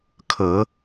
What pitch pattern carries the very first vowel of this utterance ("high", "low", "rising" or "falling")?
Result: low